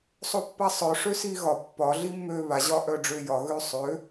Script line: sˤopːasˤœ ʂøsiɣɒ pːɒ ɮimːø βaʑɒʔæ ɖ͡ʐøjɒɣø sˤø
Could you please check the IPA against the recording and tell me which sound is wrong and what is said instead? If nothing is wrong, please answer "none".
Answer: æ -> œ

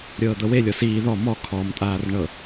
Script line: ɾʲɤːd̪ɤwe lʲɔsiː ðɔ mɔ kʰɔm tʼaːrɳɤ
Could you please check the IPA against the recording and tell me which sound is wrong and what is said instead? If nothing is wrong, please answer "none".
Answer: none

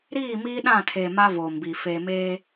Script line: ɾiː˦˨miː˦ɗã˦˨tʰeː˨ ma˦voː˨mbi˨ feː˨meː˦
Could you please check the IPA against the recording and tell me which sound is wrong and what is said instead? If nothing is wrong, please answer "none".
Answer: none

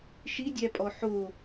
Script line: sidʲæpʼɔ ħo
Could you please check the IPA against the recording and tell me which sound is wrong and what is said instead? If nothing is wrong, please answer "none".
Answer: s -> ʃ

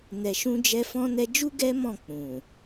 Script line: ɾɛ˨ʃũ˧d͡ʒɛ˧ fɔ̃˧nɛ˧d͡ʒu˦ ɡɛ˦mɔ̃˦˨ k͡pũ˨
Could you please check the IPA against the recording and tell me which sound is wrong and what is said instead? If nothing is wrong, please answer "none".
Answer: ɾ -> n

